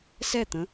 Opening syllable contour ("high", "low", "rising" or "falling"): falling